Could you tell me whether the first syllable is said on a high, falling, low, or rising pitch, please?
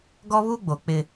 high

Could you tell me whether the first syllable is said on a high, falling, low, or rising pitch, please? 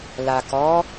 low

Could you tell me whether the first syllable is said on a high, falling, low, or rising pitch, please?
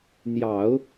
low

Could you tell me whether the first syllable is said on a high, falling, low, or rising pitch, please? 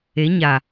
rising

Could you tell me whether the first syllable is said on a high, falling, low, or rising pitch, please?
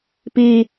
high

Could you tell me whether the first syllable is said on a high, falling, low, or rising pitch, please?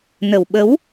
low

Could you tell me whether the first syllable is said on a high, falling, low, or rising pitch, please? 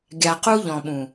low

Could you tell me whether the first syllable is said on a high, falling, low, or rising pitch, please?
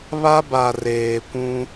high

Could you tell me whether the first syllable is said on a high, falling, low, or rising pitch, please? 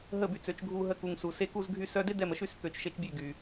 falling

